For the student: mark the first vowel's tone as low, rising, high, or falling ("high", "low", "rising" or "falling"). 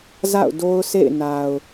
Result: falling